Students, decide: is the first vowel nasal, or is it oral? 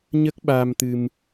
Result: oral